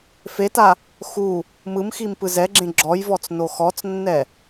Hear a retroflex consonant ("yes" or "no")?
no